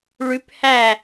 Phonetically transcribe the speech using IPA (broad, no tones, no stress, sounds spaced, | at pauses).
ɭ ʉ p h æ